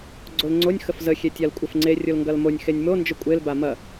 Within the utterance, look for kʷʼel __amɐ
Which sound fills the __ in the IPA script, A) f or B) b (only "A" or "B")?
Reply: B